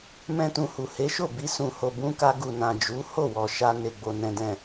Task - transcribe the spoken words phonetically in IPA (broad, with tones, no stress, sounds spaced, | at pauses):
m ɛ̃˦ t ũ˧ h u˨ h e˨˦ ʃ o˦˨ b i˧ s ũ˨ h o˨ b ũ˧ k a˧ ɡ u˨ n ã˨ d͡ʒ u˨˦ h o˦˨ w ɔ˨ ʃ a˧ n e˨ ɡ͡b o˨ n ɛ̃˨ d ɛ̃˨